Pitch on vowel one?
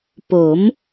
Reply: rising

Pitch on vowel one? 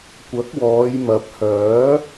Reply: rising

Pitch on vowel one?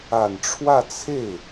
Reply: low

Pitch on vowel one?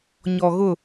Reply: low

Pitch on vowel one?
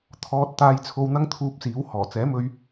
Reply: low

